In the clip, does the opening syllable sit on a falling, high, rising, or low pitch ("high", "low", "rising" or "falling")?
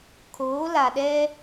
rising